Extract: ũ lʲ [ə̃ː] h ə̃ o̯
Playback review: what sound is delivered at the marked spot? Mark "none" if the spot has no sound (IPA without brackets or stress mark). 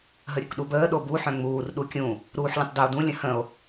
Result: ə̃